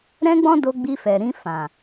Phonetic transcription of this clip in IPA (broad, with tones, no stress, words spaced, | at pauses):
ɾɛ̃˦ɡ͡bɔ̃˦ do˧ ɡ͡bi˧fɛ˨ɾĩ˧fã˨